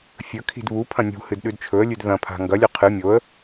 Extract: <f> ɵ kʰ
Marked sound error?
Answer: yes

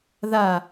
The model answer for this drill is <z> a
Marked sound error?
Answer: yes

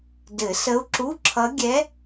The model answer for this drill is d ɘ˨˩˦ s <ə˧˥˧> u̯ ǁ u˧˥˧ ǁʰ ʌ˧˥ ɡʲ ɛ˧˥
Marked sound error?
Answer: yes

